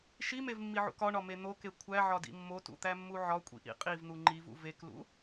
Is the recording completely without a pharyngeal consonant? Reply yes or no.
no